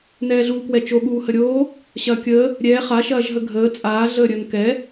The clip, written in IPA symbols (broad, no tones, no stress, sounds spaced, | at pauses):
n ɛː ɮ uː k w ɛ t͡ʃ o ɠ uː h ə ɾʲ oː | ɕ ɐː kʲ əː | ɾʲ ɛː χ a ʃ ɐː ʒ ɦ ə ɡʱ əː t͡sʼ aː ɮ əː ɾʲ əː n k ɛ